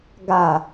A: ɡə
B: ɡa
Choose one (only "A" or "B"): B